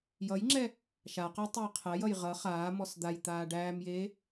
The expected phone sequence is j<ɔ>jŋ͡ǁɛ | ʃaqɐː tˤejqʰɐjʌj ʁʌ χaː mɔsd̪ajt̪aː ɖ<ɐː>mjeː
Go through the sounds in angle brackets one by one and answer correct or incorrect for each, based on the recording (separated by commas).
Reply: incorrect, incorrect